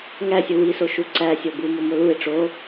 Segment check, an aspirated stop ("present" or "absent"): absent